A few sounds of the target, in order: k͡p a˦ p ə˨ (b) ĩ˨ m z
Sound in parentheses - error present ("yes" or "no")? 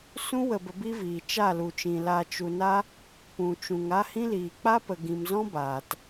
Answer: yes